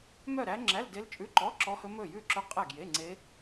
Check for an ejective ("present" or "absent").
present